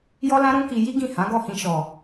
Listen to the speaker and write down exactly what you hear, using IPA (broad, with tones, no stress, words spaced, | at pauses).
jɔ˦lã˦ɾũ˦ki˧ ji˦ɡĩ˦˨ hã˨˦ɡɔ˦˨hĩ˧ ʃɔ˨